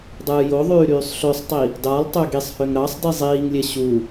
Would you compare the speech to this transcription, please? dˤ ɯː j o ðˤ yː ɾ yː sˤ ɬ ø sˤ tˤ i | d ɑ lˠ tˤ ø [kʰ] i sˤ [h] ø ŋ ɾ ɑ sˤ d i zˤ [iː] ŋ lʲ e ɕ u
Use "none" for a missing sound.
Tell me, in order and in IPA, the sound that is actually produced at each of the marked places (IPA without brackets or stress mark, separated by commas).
ɡ, h, iː